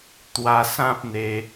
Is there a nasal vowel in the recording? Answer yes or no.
yes